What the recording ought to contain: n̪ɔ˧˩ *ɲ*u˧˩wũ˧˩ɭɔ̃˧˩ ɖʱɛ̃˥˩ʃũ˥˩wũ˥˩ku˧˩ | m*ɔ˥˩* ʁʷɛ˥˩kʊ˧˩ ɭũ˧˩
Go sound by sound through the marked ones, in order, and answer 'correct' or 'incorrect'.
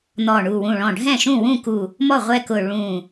incorrect: ɳ, correct

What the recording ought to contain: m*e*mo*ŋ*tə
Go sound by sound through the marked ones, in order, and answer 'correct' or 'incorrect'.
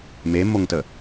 correct, correct

